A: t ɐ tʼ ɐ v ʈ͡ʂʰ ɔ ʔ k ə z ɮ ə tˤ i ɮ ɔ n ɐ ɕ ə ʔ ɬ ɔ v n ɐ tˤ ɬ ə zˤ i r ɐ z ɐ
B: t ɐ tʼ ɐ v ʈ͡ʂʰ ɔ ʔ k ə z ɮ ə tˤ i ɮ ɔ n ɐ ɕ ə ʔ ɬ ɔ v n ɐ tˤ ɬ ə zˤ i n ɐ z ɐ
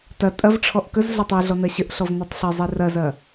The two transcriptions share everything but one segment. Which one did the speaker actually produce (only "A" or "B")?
A